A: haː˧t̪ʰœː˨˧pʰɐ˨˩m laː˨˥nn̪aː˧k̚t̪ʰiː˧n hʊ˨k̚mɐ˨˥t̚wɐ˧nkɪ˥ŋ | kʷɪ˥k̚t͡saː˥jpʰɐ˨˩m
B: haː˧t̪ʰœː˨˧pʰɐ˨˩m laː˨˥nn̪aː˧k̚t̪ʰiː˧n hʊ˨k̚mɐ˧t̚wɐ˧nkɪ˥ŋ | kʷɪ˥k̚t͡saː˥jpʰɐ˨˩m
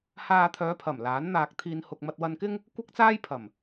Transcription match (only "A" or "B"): B